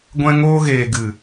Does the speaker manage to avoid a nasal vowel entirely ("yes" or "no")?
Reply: no